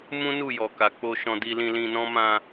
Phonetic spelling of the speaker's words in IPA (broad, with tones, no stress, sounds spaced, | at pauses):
m ũ˦ n u˦˨ j ɔ˨ k a˨ k͡p o˧ ʃ ɔ̃˧ d i˧ l ĩ˧ l ĩ˧ n ɔ̃˦ m ã˧